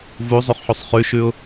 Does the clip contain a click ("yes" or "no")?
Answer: no